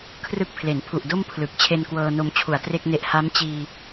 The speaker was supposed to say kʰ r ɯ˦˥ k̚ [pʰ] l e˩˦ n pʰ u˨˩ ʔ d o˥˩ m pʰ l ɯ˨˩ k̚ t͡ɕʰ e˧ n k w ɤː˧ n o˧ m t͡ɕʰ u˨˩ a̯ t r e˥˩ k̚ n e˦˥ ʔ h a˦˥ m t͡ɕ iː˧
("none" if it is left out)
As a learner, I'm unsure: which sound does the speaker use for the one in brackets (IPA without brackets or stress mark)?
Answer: pʰ